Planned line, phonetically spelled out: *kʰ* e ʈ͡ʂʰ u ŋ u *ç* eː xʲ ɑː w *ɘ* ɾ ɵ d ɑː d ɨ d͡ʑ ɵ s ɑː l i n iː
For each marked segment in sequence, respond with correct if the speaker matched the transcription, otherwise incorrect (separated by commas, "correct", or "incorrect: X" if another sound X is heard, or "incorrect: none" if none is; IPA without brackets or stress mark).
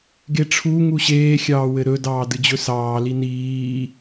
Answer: incorrect: ɡ, incorrect: ɕ, correct